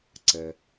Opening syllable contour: low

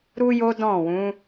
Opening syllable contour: high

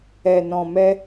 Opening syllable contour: low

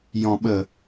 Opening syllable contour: low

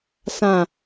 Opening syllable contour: low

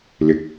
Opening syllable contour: rising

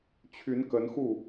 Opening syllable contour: rising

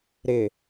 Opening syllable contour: low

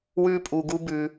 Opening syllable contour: high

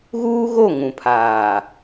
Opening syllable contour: high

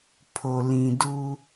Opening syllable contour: low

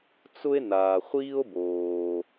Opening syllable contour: high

